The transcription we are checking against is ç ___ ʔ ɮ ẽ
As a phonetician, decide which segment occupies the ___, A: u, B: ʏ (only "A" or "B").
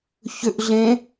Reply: B